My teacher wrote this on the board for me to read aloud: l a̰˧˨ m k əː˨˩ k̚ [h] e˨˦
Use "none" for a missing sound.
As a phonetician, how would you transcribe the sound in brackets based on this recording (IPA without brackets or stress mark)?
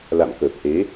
h